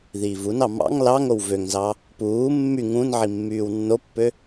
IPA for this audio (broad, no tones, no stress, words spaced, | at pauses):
ðiːvunɑ mɑ̰ŋ lɑŋ owvøŋzɑ | puː mːy ŋũn ʕimːyːwnːopːø